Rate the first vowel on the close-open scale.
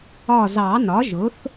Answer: open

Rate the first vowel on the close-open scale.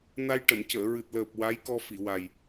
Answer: open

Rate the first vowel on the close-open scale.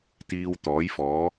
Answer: close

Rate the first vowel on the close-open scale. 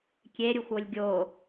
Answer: mid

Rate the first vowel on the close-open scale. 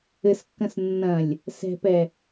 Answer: mid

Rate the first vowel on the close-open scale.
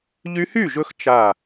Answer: close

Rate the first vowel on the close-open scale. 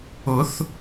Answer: close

